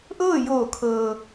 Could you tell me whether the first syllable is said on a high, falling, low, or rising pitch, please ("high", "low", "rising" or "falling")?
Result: falling